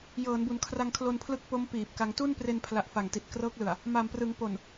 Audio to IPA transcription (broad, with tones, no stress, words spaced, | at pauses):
jɤː˩˦nbu˩˦n kʰra˧ŋkʰlo˧n pʰlɯ˦˥k̚po˦˥m piː˨˩p̚ka˧ŋ tu˥˩npre˧npʰla˨˩ʔ fa˨˩ŋti˨˩t̚krɤː˦˥k̚lɯ˨˩a̯ | ma˨˩mprɯ˩˦ŋ po˨˩n